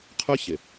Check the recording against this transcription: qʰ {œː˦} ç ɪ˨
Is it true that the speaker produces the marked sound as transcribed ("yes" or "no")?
no